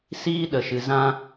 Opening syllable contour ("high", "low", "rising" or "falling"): high